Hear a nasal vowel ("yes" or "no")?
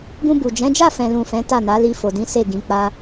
yes